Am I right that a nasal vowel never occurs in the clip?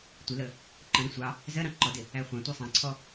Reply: no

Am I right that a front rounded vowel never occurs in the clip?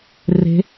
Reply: yes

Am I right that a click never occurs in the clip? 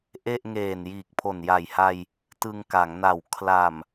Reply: yes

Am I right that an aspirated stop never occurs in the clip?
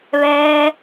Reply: yes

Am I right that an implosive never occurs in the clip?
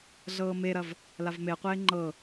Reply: yes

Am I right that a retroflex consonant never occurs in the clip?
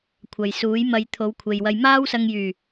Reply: yes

